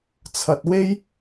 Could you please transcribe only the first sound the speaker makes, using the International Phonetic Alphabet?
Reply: t͡sʰ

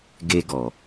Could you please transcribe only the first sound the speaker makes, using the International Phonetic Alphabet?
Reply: ɡ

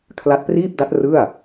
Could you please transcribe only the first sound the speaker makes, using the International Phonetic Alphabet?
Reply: kʰ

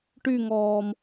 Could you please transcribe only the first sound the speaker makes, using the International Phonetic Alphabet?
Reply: ʈ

